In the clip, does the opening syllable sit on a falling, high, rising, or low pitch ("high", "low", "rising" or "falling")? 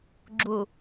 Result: low